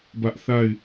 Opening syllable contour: high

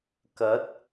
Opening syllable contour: rising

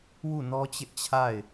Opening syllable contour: falling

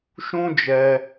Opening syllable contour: high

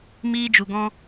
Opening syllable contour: high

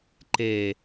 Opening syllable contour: low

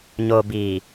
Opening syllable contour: low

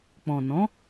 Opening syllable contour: low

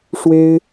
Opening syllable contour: high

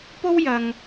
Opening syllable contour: high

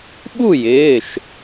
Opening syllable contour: falling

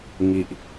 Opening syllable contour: low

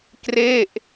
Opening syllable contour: falling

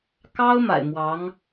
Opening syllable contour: high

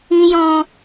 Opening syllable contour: low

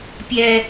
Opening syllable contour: high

